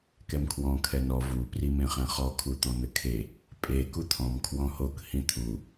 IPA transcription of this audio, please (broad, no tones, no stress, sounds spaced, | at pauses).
k ɛ m kʰ w ɔ̃ kʰ ɛ n ɔ v u p r i m ẽ χ ɛ̃ χ ɔ kʰ u t̪ ɔ̃ n̪ ɘ kʰ e | pʼ e k u t̪ʰ ɔ̃ m kʰ w ɔ̃ h o k h ĩ t̪ʰ u